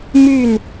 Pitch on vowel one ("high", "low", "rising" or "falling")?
falling